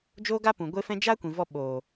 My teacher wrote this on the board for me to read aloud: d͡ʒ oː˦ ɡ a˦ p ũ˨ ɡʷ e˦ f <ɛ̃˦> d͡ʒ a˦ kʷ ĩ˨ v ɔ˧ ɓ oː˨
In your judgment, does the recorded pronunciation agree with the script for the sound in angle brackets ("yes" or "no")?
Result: yes